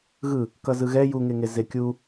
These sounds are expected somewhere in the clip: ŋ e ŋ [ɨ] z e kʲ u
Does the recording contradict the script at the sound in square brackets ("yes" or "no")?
yes